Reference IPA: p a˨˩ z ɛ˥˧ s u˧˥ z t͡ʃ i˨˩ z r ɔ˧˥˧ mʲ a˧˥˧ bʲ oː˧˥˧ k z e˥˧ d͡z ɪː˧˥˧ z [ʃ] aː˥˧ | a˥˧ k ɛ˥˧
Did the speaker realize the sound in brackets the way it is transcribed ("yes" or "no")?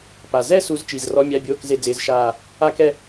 yes